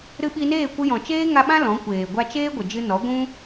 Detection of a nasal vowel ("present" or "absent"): present